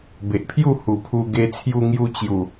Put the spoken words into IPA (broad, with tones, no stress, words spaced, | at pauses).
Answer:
be˨ʔpʰju˥˧ hu˨˩pʰu˧ ɡe˧t͡sʰju˧ŋju˧ t͡ɕju˨˩